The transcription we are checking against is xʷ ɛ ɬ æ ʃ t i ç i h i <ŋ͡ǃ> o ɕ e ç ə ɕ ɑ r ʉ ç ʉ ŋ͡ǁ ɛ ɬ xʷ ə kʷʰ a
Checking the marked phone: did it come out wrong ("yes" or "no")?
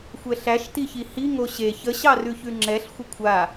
yes